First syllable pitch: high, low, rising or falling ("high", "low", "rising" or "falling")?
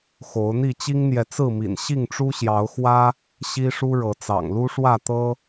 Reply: rising